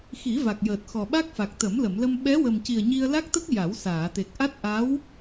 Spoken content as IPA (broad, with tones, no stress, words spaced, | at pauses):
xi˨˩˦va˨˩k̚jəː˨˩t̚ xɔ˨˩ɓa˦˥k̚fa˨˩k̚ t̪ə˨˩˦mlə˨˩˨mlə˧m ɓɛ˧˥wə˨˩mci˨˩ə̯ɲi˧ə̯ la˦˥k̚t̪ə˦˥k̚ ja˨˩˦wsaː˨˩˨t̪e˨˩k̚ʔa˦˥t̚ ʔa˧˥w